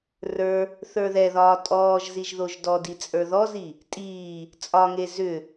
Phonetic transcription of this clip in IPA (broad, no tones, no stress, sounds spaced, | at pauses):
r ə˞ | θ ə˞ ð ɛ ð ɒː tʼ ɔː ʒ z i ʒ ð o ʒ d ɔ d i t͡sʼ ə˞ ð ɔ z i | tʼ iː | t͡sʼ ɒ ŋ e z ʏ